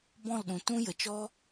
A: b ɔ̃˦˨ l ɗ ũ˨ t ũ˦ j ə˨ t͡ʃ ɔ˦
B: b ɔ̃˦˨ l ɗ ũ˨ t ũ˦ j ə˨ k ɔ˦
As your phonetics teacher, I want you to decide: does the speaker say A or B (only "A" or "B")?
A